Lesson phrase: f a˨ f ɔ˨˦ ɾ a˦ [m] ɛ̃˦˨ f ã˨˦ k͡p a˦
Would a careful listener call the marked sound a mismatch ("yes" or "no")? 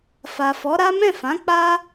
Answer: no